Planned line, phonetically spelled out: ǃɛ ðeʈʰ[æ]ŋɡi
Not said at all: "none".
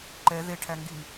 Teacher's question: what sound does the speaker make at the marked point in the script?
æ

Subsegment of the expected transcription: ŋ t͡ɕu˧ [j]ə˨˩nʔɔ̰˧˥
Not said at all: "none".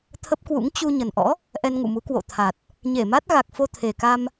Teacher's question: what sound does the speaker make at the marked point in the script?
ɲ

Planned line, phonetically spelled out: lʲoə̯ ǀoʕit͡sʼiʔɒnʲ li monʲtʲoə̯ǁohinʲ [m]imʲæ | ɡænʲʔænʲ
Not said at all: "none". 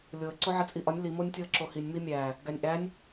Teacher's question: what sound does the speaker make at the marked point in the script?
m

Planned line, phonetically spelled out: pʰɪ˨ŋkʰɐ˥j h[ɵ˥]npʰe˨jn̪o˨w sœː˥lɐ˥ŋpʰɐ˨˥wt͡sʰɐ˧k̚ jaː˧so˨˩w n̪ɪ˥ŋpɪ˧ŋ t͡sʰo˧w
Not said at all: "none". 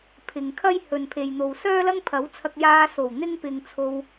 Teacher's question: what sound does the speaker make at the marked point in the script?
ɵ˨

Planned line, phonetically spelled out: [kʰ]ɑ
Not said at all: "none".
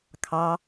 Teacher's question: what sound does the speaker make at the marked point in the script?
kʰ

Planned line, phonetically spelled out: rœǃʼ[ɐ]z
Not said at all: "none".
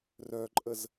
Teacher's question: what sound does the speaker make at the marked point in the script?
ə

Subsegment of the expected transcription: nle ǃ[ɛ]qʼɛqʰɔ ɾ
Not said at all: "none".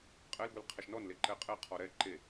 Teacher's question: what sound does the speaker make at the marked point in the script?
ɛ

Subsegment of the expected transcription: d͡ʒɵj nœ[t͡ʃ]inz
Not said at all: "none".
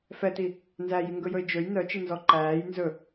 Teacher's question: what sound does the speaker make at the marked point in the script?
t͡ʃ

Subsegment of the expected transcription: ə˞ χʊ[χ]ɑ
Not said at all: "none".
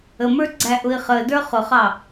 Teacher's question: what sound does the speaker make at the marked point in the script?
χ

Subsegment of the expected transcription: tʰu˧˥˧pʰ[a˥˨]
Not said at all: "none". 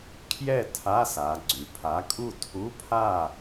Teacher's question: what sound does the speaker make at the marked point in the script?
a˥˨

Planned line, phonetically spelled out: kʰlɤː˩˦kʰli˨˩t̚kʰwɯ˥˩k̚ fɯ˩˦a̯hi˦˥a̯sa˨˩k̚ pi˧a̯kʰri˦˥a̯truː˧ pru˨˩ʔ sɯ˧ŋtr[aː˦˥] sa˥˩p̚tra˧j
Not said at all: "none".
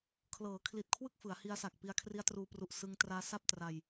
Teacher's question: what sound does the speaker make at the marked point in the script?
aː˦˥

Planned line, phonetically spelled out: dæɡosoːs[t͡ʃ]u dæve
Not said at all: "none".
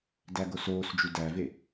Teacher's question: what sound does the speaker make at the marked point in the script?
d͡ʒ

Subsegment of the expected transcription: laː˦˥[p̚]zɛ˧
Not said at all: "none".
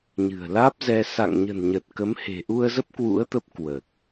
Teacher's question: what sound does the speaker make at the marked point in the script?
p̚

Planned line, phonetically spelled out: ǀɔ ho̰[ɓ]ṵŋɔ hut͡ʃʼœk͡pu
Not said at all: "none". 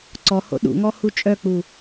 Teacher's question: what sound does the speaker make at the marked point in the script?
ɗ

